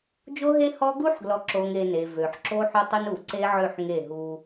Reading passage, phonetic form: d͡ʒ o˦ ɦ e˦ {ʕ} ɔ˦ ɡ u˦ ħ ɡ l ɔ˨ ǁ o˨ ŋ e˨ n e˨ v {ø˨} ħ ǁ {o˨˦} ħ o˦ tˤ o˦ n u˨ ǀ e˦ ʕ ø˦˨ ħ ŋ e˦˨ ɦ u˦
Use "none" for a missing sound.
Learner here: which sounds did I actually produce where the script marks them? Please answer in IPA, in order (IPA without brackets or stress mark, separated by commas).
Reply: h, ø˨, o˦